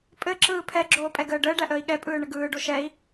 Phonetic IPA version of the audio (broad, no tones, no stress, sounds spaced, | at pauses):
pʼ ɘ ǁ ɯː pʰ ɛ ɡ͡ǁ oː pʼ ɛ ɡ əː ɖ əː ɖ æ ʔ əː i̯ ɠ ɛ pʼ ɯː ɳ ə ɡ ɯː ɖ o ʃ ɛ i̯